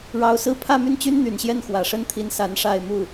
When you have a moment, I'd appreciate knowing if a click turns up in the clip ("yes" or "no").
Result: no